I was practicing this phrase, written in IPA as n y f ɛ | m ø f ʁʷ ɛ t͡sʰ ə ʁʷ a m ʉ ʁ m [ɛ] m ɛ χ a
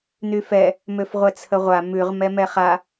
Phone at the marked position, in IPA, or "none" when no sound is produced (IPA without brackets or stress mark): ɛ